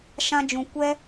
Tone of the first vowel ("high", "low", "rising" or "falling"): high